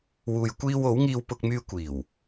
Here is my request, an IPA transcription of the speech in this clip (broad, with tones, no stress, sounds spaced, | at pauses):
w uː˨ j kʷ iː˧ w o˨˥ w ŋ iː˧ w p ʊ˧ k̚ m yː˧ kʷ iː˨˩ w